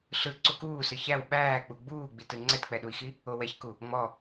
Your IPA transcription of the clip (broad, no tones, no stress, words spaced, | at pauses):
ɬɯ ǀukuːsɯ çæw ɓæːk͡pu ɡ͡buːɡ͡bitɯ ŋ͡ǀɛtk͡pɛɗui̯xi | owɛçku | ŋ͡mɔ